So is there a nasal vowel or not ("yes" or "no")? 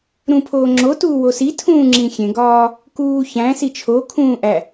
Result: yes